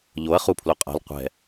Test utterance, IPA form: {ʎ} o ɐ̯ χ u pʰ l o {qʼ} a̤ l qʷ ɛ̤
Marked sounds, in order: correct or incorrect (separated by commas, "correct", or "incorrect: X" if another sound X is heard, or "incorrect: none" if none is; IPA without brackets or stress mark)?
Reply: correct, correct